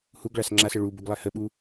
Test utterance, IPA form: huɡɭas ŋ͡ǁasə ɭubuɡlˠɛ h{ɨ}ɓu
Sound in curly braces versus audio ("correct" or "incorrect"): incorrect